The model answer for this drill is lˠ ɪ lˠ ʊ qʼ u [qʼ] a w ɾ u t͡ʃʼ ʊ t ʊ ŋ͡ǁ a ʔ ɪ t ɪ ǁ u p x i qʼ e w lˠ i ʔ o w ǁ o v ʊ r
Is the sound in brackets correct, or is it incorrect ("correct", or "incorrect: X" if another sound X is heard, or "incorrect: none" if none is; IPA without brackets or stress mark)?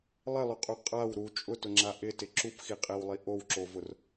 correct